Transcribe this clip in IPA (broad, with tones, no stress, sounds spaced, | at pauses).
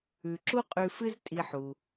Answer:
ʉ˩ ǁ u˥ qʼ ʉ˧ f ɨ˥ z tʼ i˧ ħ u˩